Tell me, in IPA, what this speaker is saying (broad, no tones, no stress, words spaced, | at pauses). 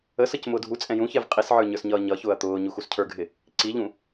əsʌc mʊːdʱut͡sʼɛ̃ jũçɛv qʼisʕə˞ ɲə˞sɲʌːɲʌçʊːɐ̯ t̪ʊːɲu xuscʰə˞ɡʱɪ | ǀiʎũ